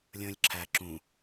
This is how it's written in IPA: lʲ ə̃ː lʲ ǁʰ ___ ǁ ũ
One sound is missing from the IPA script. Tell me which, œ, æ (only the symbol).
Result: æ